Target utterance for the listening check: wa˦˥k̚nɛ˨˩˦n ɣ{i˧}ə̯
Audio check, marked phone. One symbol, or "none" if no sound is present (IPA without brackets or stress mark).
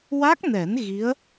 i˧˥